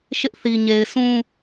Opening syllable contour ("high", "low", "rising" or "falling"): high